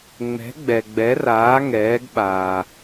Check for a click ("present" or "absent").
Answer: absent